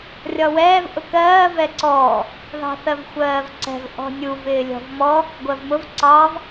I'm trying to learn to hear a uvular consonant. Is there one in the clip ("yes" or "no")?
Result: no